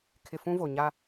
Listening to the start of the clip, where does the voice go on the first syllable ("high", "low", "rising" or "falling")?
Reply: low